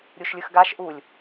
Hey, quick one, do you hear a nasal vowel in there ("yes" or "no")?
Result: no